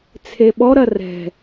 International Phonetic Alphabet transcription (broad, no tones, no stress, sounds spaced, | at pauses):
t͡sʰ e ɓ ɔ ɾ ɐ r ɛ̤